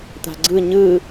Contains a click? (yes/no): yes